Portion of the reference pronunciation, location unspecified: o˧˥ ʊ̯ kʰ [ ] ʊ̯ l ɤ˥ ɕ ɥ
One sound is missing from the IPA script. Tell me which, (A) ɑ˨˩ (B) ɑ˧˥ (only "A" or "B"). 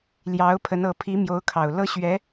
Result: A